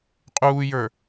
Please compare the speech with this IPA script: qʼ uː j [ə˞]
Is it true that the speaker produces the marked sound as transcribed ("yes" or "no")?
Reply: yes